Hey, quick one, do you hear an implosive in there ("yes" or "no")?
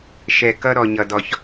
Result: no